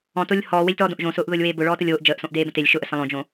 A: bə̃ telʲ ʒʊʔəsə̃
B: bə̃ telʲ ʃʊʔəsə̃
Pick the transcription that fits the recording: B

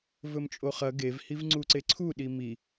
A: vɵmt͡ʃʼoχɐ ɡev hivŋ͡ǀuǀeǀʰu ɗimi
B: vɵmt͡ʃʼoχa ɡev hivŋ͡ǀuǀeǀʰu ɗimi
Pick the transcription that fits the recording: A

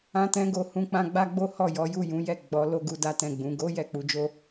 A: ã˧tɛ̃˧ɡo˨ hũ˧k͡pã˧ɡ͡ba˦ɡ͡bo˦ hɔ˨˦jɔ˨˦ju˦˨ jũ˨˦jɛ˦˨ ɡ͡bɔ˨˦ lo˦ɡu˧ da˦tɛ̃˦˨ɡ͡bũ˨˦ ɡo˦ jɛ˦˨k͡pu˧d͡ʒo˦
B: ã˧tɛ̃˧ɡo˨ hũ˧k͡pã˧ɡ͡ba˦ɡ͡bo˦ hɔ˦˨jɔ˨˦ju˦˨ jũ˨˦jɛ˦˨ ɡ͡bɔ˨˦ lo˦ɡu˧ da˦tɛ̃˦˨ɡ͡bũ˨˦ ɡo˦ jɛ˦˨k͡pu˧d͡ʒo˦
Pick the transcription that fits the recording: B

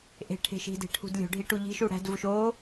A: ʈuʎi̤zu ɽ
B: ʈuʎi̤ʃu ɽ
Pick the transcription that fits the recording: B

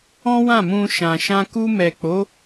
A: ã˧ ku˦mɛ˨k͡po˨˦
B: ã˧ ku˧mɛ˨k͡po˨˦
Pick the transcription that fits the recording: B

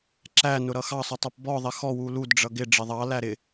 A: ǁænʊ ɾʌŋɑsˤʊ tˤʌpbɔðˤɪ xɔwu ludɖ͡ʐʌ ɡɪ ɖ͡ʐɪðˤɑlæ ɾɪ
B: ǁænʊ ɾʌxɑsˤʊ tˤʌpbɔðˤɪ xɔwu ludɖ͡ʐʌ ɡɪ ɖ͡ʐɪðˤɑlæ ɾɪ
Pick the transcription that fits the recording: B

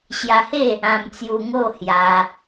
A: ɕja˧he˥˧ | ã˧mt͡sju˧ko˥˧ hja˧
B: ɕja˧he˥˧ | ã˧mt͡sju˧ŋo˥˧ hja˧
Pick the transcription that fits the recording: B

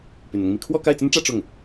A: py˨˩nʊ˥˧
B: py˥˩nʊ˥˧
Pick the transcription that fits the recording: A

